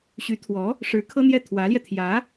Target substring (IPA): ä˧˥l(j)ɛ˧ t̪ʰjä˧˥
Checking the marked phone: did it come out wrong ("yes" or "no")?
no